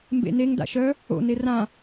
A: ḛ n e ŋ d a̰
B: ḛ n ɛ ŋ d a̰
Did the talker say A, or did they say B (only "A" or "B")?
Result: A